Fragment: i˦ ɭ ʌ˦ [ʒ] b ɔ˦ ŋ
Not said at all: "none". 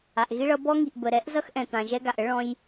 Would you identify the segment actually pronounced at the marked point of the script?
none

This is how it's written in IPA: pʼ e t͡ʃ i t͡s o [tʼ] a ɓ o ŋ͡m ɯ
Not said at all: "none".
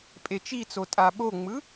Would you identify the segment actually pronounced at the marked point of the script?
tʼ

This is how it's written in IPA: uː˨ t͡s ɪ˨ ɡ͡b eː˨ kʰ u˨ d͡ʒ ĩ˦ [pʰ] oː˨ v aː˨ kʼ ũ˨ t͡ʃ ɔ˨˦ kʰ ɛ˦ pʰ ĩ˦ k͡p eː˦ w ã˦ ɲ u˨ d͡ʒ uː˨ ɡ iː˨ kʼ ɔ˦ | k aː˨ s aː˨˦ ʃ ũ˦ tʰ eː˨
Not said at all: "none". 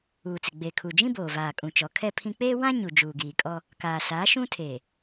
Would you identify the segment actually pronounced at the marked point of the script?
b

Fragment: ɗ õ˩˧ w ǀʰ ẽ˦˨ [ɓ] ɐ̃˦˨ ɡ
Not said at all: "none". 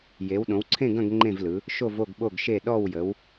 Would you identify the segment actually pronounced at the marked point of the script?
ɡ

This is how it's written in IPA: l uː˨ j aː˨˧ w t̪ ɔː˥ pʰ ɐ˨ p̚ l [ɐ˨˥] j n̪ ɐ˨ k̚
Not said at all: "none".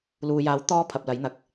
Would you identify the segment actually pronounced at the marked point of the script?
ɐ˨˥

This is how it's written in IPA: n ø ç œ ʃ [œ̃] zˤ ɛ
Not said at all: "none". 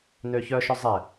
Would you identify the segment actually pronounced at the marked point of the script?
œ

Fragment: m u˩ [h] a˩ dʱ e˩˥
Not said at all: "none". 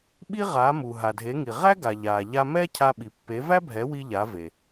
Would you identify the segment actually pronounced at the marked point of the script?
ɦ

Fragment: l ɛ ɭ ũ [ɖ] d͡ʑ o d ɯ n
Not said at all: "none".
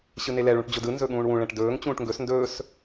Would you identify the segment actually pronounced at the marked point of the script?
ʈ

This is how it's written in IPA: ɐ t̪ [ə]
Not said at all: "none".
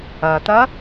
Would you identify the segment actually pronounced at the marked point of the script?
ɐ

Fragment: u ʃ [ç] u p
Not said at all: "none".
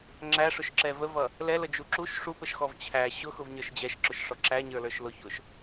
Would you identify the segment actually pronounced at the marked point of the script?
ʂ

